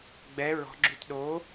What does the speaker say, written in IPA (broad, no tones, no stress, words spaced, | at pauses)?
ɡ͡bɛ ɹɔ̤ɡ͡ǁyt ɗoː